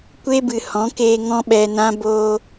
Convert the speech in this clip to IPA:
kʷe˦bɨ˨hɔ̃˨˦keː˧ ŋɔ̃˦ɓɛ˧nã˦ boː˧

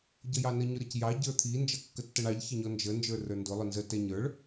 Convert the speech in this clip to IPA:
ɟʌjɑnə ɲʊɾʌcjɑ ɟə˞t̪ʰi nd͡ʒʌkːətːʌɳɑʎ çəɲɔnd͡ʒə nd͡ʒə˞rə˞ndʊ lˠʊnzə tɛɲə˞ɭ

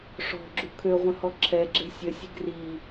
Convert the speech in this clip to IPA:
ʂɔ̤ɡ͡ǁu kʰøʁʷə̃hɔ ǁʰɛɡ͡ǁe̤ sʲəsʲe̤ ɡri

